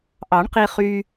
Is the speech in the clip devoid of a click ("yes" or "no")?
yes